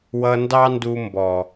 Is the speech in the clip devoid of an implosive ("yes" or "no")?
yes